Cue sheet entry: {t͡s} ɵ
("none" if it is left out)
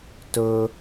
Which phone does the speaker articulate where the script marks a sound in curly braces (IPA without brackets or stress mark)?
t